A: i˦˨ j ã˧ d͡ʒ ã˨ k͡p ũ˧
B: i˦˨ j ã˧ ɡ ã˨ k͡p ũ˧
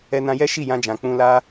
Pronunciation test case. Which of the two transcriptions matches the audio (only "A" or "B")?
A